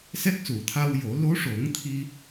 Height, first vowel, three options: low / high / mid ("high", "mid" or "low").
mid